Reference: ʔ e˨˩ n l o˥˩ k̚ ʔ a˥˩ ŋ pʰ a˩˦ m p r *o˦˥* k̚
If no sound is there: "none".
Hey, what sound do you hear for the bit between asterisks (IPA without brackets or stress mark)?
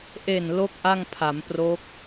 o˦˥